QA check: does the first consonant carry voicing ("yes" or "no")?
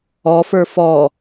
no